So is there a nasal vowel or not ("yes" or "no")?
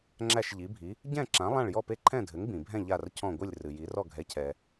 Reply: yes